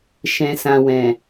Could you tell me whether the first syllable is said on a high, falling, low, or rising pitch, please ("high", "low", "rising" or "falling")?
low